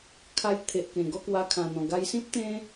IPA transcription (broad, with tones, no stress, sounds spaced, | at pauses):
kʰ a˧ j t̪ʰ e˨ ʔ k ẽ˨˩ ɡ ɔ˥˧ k w a˧ kʰ ã˨˩ n̪ ɔ̃˨˩ ɡ a˧ j s ĩ˦ p̚ t̪ ẽ˦